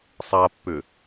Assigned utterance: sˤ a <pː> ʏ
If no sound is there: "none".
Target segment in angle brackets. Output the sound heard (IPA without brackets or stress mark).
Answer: pː